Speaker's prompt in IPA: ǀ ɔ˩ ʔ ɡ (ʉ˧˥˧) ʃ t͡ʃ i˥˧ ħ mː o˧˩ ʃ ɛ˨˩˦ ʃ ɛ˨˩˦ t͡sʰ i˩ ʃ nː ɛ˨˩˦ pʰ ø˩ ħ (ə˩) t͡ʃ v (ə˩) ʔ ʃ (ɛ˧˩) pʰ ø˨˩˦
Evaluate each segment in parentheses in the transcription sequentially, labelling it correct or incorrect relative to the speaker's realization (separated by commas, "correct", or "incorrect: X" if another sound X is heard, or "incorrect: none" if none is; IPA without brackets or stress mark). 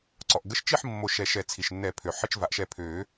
incorrect: ə˧˥˧, incorrect: ə˧˥˧, incorrect: a˩, correct